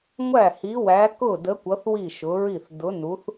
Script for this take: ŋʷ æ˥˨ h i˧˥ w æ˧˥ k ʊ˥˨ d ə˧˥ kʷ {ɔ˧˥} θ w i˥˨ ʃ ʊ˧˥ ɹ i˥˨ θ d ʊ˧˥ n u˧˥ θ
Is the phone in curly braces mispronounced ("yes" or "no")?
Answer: yes